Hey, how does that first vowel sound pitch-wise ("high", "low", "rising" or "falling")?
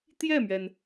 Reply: falling